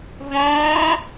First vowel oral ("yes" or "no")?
no